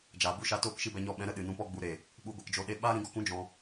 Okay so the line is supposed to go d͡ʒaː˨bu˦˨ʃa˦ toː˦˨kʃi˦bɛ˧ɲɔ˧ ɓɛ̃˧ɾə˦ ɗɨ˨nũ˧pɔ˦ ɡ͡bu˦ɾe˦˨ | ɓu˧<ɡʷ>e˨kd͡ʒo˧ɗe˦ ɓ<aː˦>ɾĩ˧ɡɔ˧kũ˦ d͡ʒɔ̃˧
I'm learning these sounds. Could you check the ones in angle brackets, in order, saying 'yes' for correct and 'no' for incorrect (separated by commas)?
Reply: yes, yes